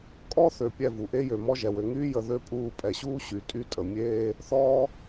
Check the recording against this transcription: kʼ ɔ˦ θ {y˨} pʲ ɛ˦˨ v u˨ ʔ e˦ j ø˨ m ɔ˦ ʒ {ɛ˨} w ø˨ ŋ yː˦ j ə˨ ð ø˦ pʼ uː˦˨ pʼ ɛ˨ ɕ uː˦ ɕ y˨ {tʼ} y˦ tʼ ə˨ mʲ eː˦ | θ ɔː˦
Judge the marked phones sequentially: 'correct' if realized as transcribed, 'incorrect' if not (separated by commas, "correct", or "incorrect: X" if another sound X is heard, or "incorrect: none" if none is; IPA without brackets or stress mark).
incorrect: ø˨, correct, correct